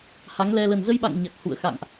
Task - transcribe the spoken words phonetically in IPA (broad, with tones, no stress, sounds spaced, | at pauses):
h a˨˦ ŋ l ɛ˧ l ə˨˩ n z ə˧ j ɓ a̰˧˨ ŋ ɲ a˨˩ k̚ h ṵ˧˨ ə̯ x a̰˧˨ ŋ ʔ